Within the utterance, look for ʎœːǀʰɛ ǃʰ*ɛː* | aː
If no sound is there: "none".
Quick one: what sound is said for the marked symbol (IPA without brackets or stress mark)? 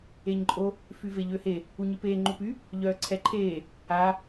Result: eː